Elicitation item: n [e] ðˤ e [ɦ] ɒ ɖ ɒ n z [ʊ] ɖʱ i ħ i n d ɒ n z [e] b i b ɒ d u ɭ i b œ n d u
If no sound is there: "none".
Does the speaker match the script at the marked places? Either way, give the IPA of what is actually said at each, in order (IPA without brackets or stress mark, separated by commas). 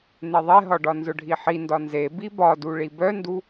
e, ɦ, ʊ, e